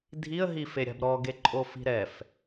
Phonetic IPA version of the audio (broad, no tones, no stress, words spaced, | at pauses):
dʱiə̯ ɦifeɾʲa̤bɾɔ ɡeǃʼofi̤ɾɛf